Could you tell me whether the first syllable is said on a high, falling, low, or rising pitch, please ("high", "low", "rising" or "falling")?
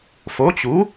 rising